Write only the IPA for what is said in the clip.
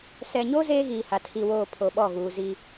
s ɛ˨ ɲ o˦ z eː˦ ɣ iː˨ h a˨ tʰ i˨ w oː˨ pʰ o˨ ɓ ɔ˦˨ ɣ uː˨ z i˦

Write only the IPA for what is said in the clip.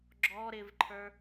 ɡ͡ǁ ɔ ɾ ɪ v ǃʰ ə˞

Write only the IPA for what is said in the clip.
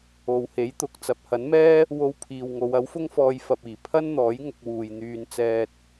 o˨˧ w h e˨˥ j t̪ ʊ˨ k̚ t͡s ɐ˨ p̚ h ɐ˨˥ n m ɛː˥ | w o˧ w pʰ iː˨ w ŋ o˨˧ w ɐ˨˥ w f ʊ˥ ŋ f ɔː˧ j f ɐ˨ p̚ iː˨˩ pʰ ɐ˥ n n̪ ɔː˨˥ j ŋ ʊ˧ k̚ w uː˨ j n̪ yː˧ n t͡s ɛː˧ t̚

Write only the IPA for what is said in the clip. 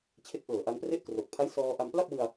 t͡ɕʰ e˦˥ k̚ ʔ ɤː˨˩ ʔ a˧ n p r e˥˩ ʔ k r o˨˩ k̚ pʰ a˦˥ j s ɔː˧ ʔ a˧ m p l a˥˩ p̚ w ɯ˧ a̯

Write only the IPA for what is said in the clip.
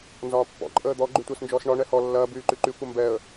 n z ɒː pː ɔ̰ ǃʼ əː d̪ ɔ ɡ͡ǃ y tʷ əː s n d͡ʒ ɔː s ɳ ɒ ɳ ɛ h ɔ lː ɐː b yː ǃ y ǃ y kʷ ɐ m b ɛ ə̯

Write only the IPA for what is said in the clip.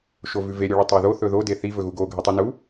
ʃ o v ʉ v e ɾʲ u ɭ ɵ tˤ o ð o θ ɵ ð o d e θ i v ɵ ɣ u ɡ o ɡʱ ɨ tˤ i n u

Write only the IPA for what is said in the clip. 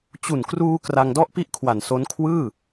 t͡ɕ u˨˩ n k r uː˧ k r a˧ ŋ d ɔ˥˩ ʔ p i˥˩ ʔ kʰ w a˨˩ n s o˦˥ n kʰ w ɯː˥˩

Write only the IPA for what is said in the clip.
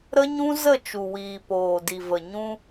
ɾ ə˦ ɲ ũ˦ z ə˦˨ t͡ʃ u˨ w iː˨ p oː˨ d i˨ v ə˨ ɲ ũ˧

